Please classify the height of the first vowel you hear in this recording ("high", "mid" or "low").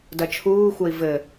low